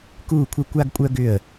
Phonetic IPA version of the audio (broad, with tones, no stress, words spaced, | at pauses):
kuː˥˧kʷʰə˥˧ kʷa˥ɡkʷʼœ˥ɡʏ˥˧ə̯